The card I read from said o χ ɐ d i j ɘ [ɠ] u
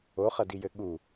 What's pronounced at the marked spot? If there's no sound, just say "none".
ɠ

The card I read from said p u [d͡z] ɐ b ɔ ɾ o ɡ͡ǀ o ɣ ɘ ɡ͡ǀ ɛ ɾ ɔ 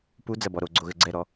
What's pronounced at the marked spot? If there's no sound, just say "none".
d͡z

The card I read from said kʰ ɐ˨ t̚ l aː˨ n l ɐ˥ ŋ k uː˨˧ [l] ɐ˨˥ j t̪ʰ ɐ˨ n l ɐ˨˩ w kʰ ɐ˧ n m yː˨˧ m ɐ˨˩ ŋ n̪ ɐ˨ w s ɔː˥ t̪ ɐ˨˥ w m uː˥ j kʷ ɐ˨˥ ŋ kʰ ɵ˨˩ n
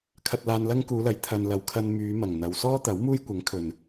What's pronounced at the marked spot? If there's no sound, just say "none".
l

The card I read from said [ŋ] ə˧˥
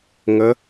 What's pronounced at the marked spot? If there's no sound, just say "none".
ŋ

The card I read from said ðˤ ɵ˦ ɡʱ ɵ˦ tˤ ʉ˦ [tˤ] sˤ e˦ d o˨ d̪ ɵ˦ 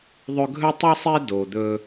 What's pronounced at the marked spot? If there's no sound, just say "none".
none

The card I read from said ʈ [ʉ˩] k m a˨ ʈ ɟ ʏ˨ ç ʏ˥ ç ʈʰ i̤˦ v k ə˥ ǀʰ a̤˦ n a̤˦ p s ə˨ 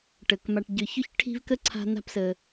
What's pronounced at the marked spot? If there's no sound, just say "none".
ə˩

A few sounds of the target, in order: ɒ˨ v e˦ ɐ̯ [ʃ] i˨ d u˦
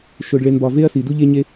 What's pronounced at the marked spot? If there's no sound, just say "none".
s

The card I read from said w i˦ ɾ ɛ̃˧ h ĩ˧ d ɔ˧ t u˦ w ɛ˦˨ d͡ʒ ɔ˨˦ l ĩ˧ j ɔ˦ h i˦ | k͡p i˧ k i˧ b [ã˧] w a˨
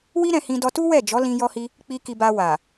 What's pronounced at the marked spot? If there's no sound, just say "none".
a˧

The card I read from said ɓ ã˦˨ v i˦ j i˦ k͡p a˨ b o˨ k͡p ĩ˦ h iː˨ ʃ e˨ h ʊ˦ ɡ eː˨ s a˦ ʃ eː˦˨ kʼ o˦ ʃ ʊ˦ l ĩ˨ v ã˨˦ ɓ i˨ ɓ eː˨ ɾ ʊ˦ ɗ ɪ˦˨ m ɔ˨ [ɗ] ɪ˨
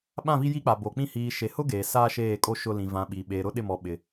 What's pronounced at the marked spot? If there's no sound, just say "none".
ɓ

